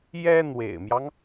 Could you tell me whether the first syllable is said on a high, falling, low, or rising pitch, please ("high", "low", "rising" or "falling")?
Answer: high